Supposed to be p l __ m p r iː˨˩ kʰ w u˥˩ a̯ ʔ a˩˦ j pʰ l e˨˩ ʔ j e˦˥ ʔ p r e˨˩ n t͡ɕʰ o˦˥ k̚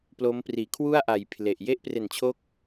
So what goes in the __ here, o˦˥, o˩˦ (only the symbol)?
o˦˥